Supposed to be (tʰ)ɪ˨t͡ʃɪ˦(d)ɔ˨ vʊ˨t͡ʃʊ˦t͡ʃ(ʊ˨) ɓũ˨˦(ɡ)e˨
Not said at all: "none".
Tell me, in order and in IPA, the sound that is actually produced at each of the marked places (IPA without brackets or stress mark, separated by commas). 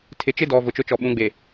tʰ, d, ɔ˨, ɡ͡b